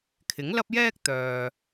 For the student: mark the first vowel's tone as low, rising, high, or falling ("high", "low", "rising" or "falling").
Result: rising